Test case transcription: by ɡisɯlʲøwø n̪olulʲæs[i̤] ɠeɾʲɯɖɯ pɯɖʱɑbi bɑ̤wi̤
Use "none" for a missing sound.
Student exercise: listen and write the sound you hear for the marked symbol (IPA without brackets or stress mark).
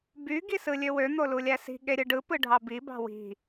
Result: i̤